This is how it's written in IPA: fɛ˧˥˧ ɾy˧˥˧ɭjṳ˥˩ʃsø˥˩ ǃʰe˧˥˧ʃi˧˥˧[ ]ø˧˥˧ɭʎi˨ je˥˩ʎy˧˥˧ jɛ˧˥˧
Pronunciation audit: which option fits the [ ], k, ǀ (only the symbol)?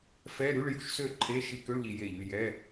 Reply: k